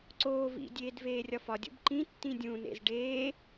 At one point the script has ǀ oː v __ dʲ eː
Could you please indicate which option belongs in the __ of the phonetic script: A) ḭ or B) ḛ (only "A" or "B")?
A